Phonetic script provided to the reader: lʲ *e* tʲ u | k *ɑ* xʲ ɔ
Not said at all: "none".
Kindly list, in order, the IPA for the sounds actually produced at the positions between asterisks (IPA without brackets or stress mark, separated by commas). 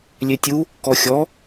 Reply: e, ɔ